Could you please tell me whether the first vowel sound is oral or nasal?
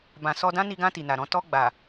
nasal